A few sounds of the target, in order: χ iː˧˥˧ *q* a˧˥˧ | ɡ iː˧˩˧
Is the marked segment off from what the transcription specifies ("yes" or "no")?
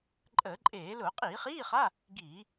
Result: yes